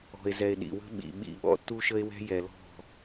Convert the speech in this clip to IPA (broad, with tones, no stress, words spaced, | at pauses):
ɔ̤˨e̯zɛ˨e̯ ɗḭ˨wə̤˦ ɓḭ˨ ɓḭ˦˨ ɓɔ̰˦tːu˦ʃə˦e̯wɛ̤˦ jɛ˨lɔ̤˦˨